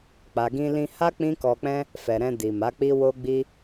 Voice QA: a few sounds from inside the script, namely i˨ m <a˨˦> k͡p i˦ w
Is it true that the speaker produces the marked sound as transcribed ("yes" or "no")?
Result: yes